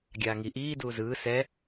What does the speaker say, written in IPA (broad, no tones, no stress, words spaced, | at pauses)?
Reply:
ɡʲaːŋi ʔiː duːzɯː sɛ